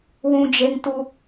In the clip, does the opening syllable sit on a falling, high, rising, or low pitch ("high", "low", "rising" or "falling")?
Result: high